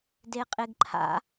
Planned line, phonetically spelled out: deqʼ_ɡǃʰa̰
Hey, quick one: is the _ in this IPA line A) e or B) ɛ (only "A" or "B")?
A